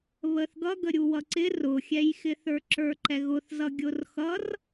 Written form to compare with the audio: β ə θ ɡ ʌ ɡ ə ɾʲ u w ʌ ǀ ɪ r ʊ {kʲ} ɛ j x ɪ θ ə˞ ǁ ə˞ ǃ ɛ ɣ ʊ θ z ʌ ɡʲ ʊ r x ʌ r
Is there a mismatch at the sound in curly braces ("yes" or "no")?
yes